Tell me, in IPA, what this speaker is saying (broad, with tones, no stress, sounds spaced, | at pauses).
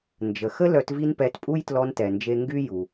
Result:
n d͡ʒ ə˨ x ə˥ l œ˦ t v i˥ n p ɛ˦ t pʼ u˥ j t l ɔ˦ n t ɛ˨ n d͡ʒ e˦ ŋ ɡ y˥ j u˨